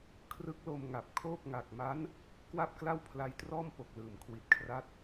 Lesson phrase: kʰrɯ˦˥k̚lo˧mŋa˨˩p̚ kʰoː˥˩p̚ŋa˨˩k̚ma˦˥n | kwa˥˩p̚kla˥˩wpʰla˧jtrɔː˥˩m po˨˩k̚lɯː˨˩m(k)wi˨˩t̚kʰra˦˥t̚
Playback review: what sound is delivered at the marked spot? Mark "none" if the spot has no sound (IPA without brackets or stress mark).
kʰ